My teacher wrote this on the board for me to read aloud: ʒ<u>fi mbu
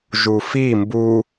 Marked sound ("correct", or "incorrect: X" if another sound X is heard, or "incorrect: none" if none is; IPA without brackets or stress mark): correct